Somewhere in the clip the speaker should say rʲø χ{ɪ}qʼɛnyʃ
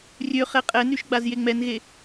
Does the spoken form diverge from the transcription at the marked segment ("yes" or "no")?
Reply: yes